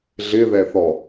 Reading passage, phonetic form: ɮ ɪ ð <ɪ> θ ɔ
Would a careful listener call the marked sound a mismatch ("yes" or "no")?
yes